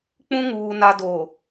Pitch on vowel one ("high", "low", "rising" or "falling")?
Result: high